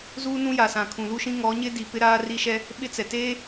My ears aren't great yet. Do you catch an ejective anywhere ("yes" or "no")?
no